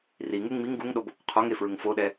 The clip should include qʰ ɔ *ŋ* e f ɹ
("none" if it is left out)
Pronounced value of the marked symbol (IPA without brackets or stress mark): ŋ